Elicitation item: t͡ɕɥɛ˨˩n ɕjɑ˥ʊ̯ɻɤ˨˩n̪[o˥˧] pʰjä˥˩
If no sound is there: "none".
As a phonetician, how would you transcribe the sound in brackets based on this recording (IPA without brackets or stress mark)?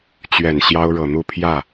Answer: u˥˧